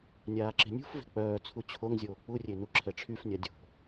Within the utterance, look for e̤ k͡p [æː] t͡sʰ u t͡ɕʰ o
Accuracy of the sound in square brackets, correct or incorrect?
incorrect